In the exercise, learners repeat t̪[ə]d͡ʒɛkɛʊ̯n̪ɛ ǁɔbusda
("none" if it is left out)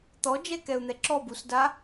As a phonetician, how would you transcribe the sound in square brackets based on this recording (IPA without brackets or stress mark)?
ɔ